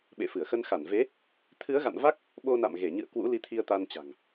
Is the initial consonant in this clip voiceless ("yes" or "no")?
no